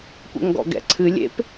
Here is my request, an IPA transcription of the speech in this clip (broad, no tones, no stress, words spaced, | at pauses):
kʷɛ̰ŋɡɔ̰ɡɛ̰ǀʰɨ lʲḛp